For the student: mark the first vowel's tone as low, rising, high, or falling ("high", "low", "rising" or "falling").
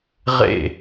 falling